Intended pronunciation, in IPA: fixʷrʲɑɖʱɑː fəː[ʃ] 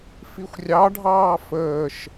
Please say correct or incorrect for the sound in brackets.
correct